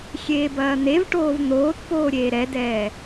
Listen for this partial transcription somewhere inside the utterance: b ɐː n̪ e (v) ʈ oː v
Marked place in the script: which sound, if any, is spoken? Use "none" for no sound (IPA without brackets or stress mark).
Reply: v